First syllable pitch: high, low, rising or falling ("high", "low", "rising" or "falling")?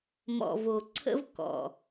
low